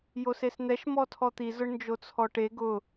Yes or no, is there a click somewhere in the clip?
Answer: no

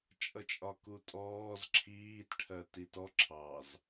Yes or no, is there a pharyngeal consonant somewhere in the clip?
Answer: no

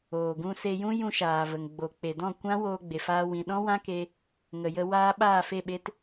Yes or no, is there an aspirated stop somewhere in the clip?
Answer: no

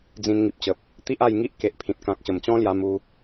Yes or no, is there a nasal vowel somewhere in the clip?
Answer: yes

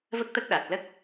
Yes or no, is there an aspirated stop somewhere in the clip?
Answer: no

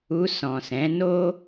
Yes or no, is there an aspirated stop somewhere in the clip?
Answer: no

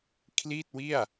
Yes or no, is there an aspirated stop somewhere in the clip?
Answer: yes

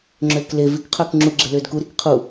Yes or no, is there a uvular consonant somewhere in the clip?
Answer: yes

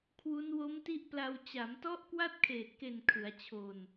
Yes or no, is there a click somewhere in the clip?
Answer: no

